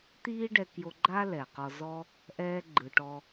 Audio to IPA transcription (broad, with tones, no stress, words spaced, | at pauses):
t̪iː˥ɖɛ˧kjo˧ɡ͡ǃa˥ lɛ˩qɔ˧ zɔ˥ | ʔɛː˧ɡ͡ǃɯ˩ ʈɔ˧